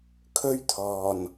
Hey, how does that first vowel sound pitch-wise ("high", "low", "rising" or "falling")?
high